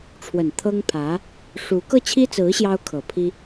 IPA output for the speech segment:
ʈ͡ʂʰwə˨˩n t̪ʰɤ˥ŋpʰä˧˥ | ʂu˧˥ kɤ˥˩t͡ɕʰi˥t͡sɹ̩˧˥ ɕjɑ˥ʊ̯kʰɤ˨˩pʰi˥

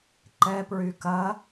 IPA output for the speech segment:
ǃɛpɹy kɐ

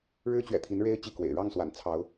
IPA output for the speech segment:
ɻɻ̩˦t͡ɕɥɛ̰˨˩t̪ʰi˨˦n ɻe˦ɪ̯ t͡ɕi˥˨kwḛ˨˩ɪ̯ ɻɑ˥˨ŋswa̰˨˩n t͡sʰɑ˨˦ʊ̯

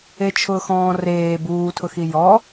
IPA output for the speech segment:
et͡ʃʰʊːxɔ̃ːreː buːtʰʊxi jɔ

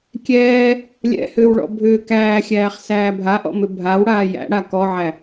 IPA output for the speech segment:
kʲɛː | lʲɛ̰hʏːwɭɔ̰ bʱʏː kæːxʲæːχ sæːbʱaʔɔ̰mʏ bʱaw ɽaːjæ̰ ɽakɔʕæ

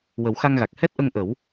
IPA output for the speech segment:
wə˨˩˦wxa˧ŋɣa˨˩k̚ hɛ˦˥t̚ʔə˧ŋ ʔə˨˩˦w

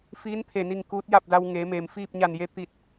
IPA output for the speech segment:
fiː˧˥nt̪ʰe˧˩ ni˥˨ŋ kuː˧˥t̚ja˥˨p̚da˧w ŋeː˩˧meː˩mfiː˥˨p̚ ɲa˧˩nje˧ t̪i˧˩t̚

